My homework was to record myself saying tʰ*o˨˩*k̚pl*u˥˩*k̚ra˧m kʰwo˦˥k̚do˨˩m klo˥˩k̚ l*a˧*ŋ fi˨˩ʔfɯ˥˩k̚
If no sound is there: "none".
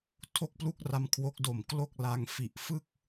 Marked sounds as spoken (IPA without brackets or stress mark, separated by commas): o˥˩, u˥˩, a˧